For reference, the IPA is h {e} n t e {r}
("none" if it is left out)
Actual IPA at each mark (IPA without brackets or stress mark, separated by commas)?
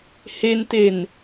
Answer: e, n